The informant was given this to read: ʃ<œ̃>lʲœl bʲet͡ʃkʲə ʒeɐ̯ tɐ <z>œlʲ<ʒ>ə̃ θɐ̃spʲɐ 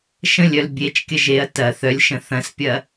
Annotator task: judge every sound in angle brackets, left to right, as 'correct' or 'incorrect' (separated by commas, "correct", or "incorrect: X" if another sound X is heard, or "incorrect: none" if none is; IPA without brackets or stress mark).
incorrect: ə̃, incorrect: θ, incorrect: ʃ